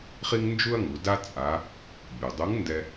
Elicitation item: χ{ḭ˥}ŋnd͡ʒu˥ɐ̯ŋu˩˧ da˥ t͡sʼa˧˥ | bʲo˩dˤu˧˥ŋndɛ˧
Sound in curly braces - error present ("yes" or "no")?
yes